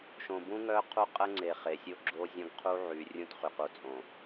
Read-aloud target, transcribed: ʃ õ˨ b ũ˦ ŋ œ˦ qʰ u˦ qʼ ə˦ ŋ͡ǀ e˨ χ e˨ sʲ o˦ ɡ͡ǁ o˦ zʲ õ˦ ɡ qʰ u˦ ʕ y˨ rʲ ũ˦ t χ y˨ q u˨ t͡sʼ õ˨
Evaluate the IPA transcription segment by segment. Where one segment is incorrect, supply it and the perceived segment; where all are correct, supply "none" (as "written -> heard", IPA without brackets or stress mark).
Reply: none